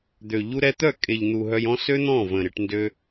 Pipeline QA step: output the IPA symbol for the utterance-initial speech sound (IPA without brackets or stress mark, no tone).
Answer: d̪